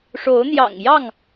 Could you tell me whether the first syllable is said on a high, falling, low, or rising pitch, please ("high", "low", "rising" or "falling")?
rising